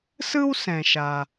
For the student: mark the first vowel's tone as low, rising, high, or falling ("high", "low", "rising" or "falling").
high